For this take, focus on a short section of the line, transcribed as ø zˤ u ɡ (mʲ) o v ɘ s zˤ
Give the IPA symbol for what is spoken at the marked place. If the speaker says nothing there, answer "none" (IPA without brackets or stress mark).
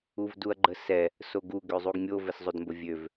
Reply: mʲ